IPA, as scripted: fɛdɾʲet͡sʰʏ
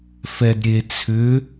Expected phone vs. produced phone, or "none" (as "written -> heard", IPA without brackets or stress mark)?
none